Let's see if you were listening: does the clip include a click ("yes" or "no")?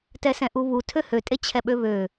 no